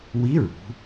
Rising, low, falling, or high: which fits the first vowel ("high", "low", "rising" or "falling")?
rising